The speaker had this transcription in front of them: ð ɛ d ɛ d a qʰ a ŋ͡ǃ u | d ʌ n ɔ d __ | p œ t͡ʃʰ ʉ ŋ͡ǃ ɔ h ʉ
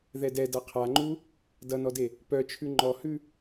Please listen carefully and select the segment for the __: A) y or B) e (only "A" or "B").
B